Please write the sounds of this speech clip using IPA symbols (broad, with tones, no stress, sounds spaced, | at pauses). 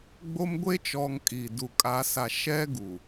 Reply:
ɡ͡b o˦ m ɡʷ e˦ t͡ʃ ɔ˨ ŋ kʼ iː˨ d u˨ kʼ a˨˦ s a˨ ʃ ɛ˦ ɡ u˨